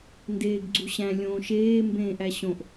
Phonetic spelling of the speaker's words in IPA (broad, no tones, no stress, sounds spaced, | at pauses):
n d eː ɡ ɡ͡ǀ u ɕ æ̃ lʲ õː ʃ eː m b ẽː ʔ æ ɕ õ ʔ